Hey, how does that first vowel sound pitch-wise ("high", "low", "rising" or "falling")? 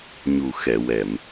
low